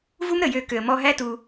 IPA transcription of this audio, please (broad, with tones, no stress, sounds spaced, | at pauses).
v u˦ m ɾ ə˨ j ø˧ k ø˨ ə̯ m ɔ˧ ɦ æ˦ t u˧